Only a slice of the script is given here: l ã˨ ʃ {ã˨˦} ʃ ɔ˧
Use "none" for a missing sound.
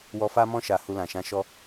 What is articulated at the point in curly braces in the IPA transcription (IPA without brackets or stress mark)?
ã˨˦